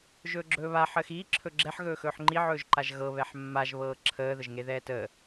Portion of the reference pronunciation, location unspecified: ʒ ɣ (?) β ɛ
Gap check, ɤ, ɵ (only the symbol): ɤ